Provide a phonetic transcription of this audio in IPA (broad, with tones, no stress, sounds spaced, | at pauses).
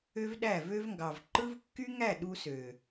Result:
ø˦ v ɗ æ˦˨ v ø˦ v ŋ ɡ ɑ˨ v ǃ ɯ˦ v kː y˦ ŋ æ˦˨ ɗ u˦ s ø˨